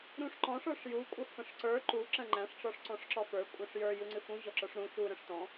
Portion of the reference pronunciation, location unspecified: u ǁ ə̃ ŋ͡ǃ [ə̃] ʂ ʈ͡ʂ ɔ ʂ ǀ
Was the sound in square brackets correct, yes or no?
no